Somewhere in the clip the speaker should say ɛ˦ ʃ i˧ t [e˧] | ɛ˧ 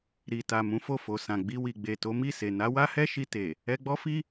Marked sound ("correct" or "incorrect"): incorrect